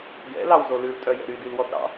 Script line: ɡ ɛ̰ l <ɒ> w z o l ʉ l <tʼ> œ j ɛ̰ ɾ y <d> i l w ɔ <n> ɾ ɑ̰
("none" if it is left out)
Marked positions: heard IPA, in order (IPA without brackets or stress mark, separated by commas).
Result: ɑ, tʼ, d, t